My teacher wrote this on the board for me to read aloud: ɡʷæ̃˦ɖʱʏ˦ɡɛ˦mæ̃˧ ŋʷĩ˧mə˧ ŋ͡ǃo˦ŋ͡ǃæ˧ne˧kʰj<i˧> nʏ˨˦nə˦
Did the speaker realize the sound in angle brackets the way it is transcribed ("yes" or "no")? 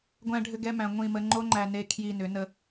yes